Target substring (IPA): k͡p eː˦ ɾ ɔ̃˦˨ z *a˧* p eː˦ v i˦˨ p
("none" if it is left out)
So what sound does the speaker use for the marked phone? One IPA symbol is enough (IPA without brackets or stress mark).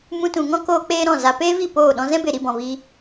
a˧